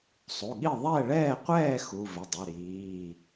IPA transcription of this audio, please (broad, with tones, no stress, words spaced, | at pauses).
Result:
sˤu˩˧˩ɠi˥˨ ðˤɛ˥˨ɭɛː˥˨qʷɛː˥˨ xu˩˧˩vʏ˩˧˩dˤʏ˩˧˩ ɾiː˩˧˩